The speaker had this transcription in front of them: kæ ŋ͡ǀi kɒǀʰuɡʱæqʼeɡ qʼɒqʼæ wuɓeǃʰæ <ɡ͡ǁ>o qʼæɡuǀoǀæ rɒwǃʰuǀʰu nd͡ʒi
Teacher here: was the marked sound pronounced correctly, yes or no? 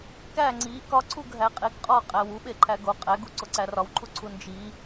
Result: no